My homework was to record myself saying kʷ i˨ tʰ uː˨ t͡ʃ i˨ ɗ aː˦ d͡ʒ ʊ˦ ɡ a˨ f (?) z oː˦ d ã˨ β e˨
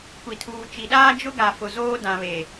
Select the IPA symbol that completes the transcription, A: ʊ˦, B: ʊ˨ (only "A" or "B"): B